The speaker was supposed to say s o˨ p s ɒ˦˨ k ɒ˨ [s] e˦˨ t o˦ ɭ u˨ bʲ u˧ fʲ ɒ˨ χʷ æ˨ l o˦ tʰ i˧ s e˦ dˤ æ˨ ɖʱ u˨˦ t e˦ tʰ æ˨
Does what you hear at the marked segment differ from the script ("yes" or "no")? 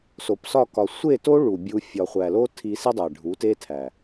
yes